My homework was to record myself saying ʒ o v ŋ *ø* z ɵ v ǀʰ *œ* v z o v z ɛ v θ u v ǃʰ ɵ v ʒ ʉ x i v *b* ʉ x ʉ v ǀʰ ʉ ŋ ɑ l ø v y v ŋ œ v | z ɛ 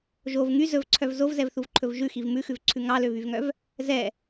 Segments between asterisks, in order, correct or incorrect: incorrect, correct, incorrect

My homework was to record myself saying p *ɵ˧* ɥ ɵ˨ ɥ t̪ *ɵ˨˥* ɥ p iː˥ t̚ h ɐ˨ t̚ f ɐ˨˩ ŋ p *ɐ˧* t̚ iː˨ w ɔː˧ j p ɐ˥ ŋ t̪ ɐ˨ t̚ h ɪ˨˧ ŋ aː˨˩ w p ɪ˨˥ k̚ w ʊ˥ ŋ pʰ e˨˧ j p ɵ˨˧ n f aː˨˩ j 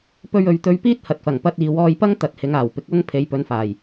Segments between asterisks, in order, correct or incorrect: correct, incorrect, correct

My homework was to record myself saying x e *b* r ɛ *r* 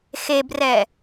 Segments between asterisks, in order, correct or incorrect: correct, incorrect

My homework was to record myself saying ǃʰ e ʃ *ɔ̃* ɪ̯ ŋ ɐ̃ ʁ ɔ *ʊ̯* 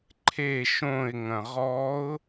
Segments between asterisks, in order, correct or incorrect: incorrect, correct

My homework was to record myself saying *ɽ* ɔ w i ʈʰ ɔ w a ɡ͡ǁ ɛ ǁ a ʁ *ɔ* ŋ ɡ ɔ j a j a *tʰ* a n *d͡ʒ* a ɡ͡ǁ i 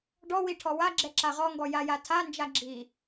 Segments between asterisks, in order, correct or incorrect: incorrect, correct, correct, correct

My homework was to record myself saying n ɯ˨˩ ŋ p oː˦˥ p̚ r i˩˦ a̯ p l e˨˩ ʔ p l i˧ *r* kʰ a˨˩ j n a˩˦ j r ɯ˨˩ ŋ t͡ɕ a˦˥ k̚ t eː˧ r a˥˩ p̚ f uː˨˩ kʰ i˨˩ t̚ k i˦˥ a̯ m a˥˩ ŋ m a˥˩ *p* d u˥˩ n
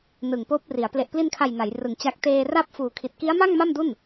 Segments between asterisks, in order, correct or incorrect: incorrect, incorrect

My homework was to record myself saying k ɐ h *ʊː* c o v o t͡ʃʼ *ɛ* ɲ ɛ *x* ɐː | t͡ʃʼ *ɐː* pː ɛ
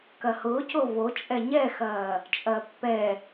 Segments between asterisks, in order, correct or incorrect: correct, correct, correct, correct

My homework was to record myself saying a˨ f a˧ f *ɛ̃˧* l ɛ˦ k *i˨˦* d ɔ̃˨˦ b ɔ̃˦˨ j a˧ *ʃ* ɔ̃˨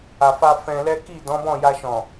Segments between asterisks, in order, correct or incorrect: correct, incorrect, correct

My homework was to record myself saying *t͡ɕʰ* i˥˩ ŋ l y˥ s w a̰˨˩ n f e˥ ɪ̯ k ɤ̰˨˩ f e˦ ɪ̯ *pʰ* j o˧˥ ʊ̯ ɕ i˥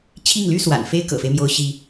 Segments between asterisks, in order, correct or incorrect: correct, incorrect

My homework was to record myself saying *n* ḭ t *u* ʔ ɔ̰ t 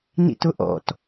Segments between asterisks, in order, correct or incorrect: correct, incorrect

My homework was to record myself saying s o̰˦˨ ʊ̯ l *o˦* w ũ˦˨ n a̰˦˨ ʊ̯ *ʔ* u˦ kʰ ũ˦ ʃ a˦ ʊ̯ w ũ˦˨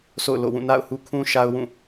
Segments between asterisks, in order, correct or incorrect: incorrect, incorrect

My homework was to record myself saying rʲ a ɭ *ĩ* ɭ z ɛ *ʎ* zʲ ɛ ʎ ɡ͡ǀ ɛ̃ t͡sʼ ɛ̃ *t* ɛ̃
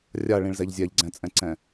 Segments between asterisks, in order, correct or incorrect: correct, correct, incorrect

